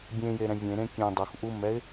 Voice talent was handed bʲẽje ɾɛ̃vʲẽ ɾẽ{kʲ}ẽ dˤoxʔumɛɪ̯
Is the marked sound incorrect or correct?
correct